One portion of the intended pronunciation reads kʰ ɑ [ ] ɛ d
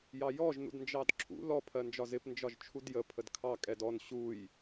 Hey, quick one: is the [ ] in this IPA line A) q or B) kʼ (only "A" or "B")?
B